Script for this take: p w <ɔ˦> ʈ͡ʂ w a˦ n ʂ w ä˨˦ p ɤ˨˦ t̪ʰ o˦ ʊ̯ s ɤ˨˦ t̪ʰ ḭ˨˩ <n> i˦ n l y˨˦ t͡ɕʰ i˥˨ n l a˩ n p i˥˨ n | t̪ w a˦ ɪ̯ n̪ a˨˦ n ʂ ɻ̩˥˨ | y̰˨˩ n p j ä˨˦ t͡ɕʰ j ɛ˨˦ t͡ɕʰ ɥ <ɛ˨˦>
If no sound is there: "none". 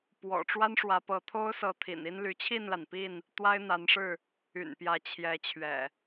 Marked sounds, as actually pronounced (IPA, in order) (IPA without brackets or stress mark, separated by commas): ɔ̰˨˩, n, ɛ̰˨˩